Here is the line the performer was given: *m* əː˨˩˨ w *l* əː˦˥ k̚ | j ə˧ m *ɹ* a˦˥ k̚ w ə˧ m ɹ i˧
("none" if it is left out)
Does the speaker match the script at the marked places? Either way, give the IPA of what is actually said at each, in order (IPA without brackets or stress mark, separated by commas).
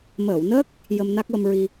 m, n, n